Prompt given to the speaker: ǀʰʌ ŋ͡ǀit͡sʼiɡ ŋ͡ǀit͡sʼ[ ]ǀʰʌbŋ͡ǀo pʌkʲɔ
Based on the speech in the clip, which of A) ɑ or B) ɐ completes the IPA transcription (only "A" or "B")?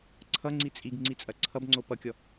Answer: B